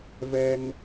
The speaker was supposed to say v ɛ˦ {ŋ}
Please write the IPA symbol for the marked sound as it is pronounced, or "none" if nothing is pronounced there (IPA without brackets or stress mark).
ŋ